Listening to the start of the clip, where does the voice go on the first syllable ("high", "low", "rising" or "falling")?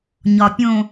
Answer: low